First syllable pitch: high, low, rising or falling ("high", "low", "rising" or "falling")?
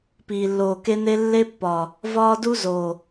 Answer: low